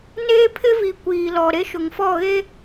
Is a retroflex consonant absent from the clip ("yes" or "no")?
yes